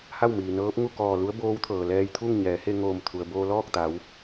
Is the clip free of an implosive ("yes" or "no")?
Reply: yes